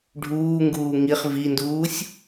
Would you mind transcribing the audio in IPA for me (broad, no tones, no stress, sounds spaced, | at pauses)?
ɖʱ uː ŋ ɡ uː ŋ i χ v i n d uː sʲ